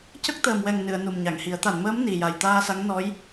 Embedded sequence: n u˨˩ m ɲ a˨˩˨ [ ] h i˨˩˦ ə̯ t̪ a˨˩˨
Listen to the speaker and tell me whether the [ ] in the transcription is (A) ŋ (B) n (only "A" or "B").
A